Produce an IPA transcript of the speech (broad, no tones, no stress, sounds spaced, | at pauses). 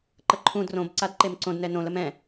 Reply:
ǃ ə ǃʰ ũ d r õ b ǀ a d ǃ e m ǀ õ d n ɛ n õ l ə m ɛ̃